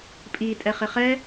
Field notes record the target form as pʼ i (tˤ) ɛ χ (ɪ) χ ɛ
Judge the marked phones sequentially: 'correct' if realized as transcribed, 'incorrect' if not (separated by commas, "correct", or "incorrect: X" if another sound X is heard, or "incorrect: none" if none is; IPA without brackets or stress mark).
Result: incorrect: tʼ, correct